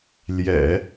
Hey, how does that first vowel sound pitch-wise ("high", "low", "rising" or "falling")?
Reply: low